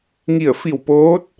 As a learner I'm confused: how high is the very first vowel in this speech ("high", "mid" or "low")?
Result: high